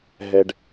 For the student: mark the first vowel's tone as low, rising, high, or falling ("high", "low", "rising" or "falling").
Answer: low